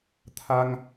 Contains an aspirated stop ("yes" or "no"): yes